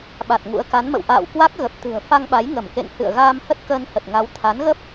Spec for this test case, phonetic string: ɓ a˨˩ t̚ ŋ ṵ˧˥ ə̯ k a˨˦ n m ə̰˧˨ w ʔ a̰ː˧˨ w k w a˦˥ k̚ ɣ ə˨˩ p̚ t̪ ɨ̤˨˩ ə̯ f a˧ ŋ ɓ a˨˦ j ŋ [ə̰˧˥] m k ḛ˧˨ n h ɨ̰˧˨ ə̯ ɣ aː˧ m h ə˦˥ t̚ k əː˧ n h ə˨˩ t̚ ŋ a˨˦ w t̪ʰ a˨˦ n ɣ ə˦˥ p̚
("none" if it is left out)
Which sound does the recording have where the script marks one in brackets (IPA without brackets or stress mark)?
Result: ə˧˩